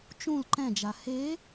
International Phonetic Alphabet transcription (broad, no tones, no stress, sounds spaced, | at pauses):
t͡ʃ ũ l ǃ ɛ̃ d͡ʒ a h e